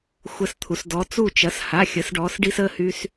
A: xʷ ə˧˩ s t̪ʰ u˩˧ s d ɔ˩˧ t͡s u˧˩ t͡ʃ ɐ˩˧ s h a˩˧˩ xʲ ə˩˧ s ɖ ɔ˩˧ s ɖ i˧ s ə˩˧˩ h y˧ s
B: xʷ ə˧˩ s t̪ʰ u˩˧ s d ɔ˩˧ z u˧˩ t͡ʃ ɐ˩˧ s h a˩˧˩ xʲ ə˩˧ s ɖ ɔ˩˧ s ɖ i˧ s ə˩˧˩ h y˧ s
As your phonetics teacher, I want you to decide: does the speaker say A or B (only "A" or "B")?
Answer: A